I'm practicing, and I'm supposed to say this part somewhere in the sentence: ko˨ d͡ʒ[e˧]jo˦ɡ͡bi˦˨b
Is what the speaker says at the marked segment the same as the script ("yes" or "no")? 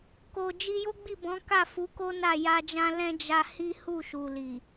no